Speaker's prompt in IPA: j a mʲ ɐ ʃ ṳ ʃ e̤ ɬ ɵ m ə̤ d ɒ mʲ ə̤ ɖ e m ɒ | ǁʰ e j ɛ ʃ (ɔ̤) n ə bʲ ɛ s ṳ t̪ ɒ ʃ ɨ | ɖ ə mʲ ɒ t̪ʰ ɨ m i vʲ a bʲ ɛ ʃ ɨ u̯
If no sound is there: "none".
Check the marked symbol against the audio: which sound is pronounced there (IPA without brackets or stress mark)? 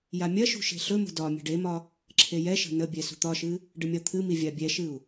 ə̤